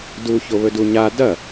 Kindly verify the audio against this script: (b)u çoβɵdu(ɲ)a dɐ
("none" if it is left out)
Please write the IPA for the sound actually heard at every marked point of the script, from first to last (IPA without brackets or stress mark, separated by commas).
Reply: d, ɲ